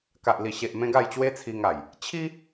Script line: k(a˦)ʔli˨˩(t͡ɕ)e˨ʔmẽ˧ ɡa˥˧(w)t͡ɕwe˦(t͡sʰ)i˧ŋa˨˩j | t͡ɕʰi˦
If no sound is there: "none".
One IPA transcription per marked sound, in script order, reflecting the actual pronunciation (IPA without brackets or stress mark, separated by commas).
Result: a˨, ɕ, j, t͡sʰ